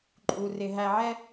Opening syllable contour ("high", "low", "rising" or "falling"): low